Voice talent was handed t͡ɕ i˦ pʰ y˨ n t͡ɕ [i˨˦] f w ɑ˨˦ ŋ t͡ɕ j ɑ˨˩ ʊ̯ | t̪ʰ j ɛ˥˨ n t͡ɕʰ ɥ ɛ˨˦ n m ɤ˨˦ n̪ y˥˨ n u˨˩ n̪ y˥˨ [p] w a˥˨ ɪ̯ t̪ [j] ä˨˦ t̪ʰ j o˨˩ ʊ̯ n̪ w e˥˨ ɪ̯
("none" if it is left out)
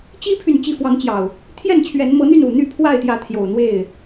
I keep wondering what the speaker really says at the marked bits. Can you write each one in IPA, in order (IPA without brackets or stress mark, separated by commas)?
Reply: i˨˦, pʰ, j